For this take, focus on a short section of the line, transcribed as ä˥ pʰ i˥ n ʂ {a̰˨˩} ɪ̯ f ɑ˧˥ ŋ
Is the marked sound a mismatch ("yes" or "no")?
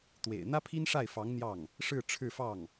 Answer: yes